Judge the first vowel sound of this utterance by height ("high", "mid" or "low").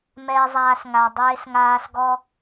mid